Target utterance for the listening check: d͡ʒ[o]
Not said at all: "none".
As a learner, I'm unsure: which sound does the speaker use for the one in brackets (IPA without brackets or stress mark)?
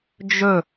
ɵ